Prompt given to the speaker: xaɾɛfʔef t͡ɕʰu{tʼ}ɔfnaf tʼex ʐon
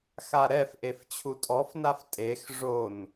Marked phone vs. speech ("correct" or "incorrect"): correct